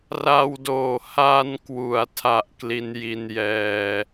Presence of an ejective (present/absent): absent